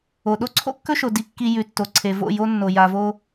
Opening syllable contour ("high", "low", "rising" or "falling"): low